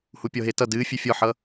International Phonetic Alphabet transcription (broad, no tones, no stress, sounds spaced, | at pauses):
h u pʲ ɔ ɦ e t ʌ d ɨː fʲ ø fʲ ɔ ħ ʌ